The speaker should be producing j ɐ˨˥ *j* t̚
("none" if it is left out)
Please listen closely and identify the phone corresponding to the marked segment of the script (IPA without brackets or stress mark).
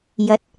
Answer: none